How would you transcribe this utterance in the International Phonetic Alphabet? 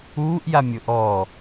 uː ʔ j a mʲ o ʔ ɔ

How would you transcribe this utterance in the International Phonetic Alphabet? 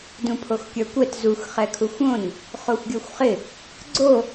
d ũ pʰ o x kʲ ə˞ kʷ ɛ t z u x χ ɛ kʰ u xʷ õ n | χ o xʷ ɡʲ ə˞ xʷ χ ɪ | ɡ͡ǀ o

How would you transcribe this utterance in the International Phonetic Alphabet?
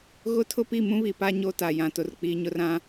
ɣ ʊ˦ tʰ ʊ˦ p i˦˨ m ũ˦ β i˨ p a˦ ɲ o˦ t a˨ j ã˨ t ʊ˨ r k͡p i˨ ɲ ʊ˦ r ã˦

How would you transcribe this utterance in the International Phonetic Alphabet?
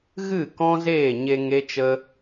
ɣ ɨ˦˨ k ɔ̃˦ z eː˦˨ ɲ e˧ ŋ e˦ t͡ʃ ə˦

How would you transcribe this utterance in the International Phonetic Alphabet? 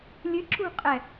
lʲ ɨ ǁ ṳ qʼ ɛ

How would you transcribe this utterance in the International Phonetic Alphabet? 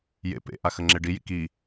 j ḛ p ḛ ʔ a x ə ŋ͡ǁ e ɖ i j ḭ k i

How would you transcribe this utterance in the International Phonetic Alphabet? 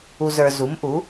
u˨ z ə˞˨ z u˩˥ m ʔ u˩˥

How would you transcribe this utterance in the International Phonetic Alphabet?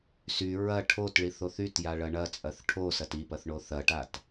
s y ɹ ɐ ʈʰ o t ɭ i θ o θ y t j a ɭ ɐ ɳ ɐ t͡sʼ ɐ θ ʈʰ o s ɐ t i p ɐ θ ɳ o θ ɐ ʈ a t

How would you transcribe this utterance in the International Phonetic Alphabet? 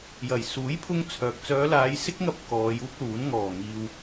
j ɐ˨˩ j s uː˨˥ j pʰ ʊ˧ ŋ t͡sʰ œː˨ k̚ t͡s œː˨˧ l aː˨˧ j s ɪ˥ k̚ ŋ ɐ˧ p̚ k ɔː˨˧ j uː˥ k̚ l uː˨˥ n ŋ ɔː˨˩ ŋ iː˨ w

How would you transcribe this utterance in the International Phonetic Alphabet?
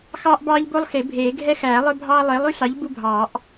x ɑː˦ ʔ b ɑː˦ ʎ b o˦ lˠ x e˨˩˦ bʱ eː˨˩˦ ɡʱ ɛ˦ x æː˨˩˦ lˠ œ˦ bʱ ɑː˦ lˠ eː˨˥ lˠ y˦ ɬ ɑ˨˥ ʎ b u˦ bʱ ɑː˨˩˦ ʔ

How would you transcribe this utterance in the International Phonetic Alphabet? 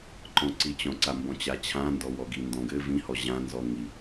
ǃ ɔ̃ ǀ i t͡ɕ ɔ̃ ǀ a m b ɔ̃ t͡ɕ a t͡ɕʰ ã n d ɔ w ɔ ɡ i n d ɔ̃ ɡ ɘ v ĩ h ɔ ʑ ã n z ɔ ŋ i

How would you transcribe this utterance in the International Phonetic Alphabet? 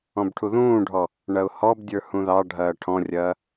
ɔ̃ b ʈʰ u ð ũː ɖʱ ɔ | ɳ ɐ ʊ̯ h ɔ b dʲ ə˞ h ũ ð ɑ ɖʱ ɐː ʈʰ ɔ̃ rʲ ɐː

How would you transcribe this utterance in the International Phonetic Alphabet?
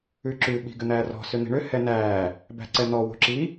ʉ ǁ ʉ ɓ i̤ ɡ ʏ n̪ æː r ɔ̤ s ʏ n̪ i̤ ɳ ʏ h ɛ n æː | b æ̤ ǀ ɛ n̪ ɔ w o̤ ǁ i

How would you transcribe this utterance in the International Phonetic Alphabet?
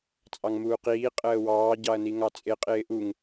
t͡sʼ ɑ ŋ m uː q iː qʼ əː w ɑː ɟ ɑ ɐ̯ n i ŋ ɑ t͡sʼ ɪ qʼ ɪː ʔ u ŋ

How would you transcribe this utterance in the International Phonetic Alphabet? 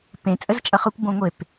p ẽ t͡sʼ ə z t͡ʃʼ ʌ χ ʊ kʷ b õ ŋʷ e p

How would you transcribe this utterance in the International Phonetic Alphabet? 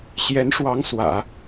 ɕ j ɛ˧˥ n ʂ w ɑ˧˥ ŋ s w ä̰˨˩˦

